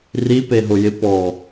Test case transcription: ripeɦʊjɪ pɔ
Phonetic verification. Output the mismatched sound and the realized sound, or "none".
none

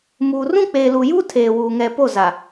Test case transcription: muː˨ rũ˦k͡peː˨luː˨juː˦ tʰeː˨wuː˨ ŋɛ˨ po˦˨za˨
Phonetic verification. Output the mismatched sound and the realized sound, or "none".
none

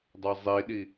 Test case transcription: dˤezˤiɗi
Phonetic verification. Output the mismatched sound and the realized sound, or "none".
none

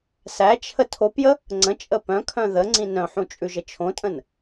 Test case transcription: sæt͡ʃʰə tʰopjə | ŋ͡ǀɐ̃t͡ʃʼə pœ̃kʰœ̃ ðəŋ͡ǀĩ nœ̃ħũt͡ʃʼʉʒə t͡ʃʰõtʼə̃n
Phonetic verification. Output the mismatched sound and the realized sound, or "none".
ɐ̃ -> ə̃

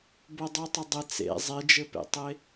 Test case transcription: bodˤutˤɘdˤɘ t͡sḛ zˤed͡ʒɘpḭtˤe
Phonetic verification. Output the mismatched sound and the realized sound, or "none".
ḭ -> ḛ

